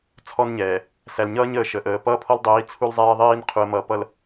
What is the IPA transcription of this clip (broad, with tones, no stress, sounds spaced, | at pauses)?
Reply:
t͡sʰ ɔ˦ n ɲ ɛː˨ | s æ˨ l ɲ ʌː˦ ɲ əː˨ ʃ ə˨ ʔ əː˨ p ʌː˦ pʰ ɔ˦ l dˤ iː˨˦ t͡sʰ u˦ l zˤ ɛː˦ ðˤ iː˦ n qʰ u˨ ə̯ m ʌː˨ p ʌ˨ l